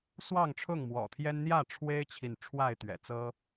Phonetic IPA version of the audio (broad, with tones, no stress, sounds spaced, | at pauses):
s w ɑ˥˨ ŋ ʈ͡ʂʰ ʊ˥˨ ŋ m w ɔ̰˨˩ t̪ʰ j ɛ˦ n n̪ j ä˥˨ ʈ͡ʂʰ w e˦ ɪ̯ t͡ɕʰ i˨ n ʈ͡ʂʰ w a˥˨ ɪ̯ t̪ ɥ ɛ̰˨˩ t͡s ɤ˦